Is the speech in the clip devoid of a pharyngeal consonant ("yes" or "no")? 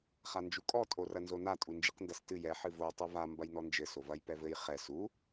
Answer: no